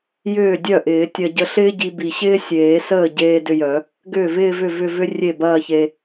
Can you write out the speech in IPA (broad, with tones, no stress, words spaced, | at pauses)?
jʏː˥˩dʲœ˥˩ʔɪː˨˩˦ tʲɐ˧ ɟə˧ɬɪː˥ɟi˧ bi˨˩ɕɪː˥sʲeː˨˩˦səː˥˩ ɟeː˧ dʏ˧jœ˨˩˦ | ɡʏː˥˩vɪː˥˧vʏ˥˩ vʏ˥˧vʏ˥ rʲe˥˩bɐː˥˧çe˧